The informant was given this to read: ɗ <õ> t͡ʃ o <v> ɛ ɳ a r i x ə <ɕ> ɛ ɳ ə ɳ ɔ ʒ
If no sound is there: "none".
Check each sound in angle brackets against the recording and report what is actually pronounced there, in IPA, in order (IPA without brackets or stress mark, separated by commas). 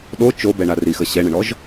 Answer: o, b, ɕ